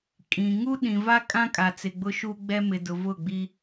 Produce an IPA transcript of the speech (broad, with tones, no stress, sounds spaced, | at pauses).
kʼ ĩ˨ ŋ u˦ ɗ ĩ˨ v a˦ kʼ ã˦ kʼ a˨ t͡s ɪ˨ ɡ͡b ʊ˦ ʃ u˦ ɡ͡b ɛ˦ m ɪ˨ d ʊ˨ v ʊ˦˨ ɡ͡b i˦